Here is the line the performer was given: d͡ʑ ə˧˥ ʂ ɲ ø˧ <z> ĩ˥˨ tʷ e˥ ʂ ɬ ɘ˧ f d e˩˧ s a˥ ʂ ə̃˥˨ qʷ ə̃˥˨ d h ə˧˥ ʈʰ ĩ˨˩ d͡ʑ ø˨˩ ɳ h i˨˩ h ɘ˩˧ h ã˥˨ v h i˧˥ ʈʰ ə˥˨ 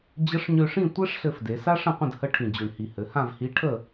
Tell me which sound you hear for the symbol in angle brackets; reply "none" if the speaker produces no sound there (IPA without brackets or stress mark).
ʂ